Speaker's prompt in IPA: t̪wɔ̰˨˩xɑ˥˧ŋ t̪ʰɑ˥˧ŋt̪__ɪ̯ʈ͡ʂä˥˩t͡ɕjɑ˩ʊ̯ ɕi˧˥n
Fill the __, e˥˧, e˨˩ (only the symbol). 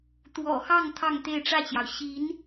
e˥˧